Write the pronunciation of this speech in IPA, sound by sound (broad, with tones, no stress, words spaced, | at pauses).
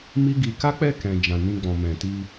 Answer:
mi˦ɡi˧ ka˦k͡pɛ˦˨kɛ̃˨ d͡ʒã˨nĩ˧ ɡ͡bɔ̃˨mɛ̃˨ti˧